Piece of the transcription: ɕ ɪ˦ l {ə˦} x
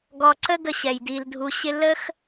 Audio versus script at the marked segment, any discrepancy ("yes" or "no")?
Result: no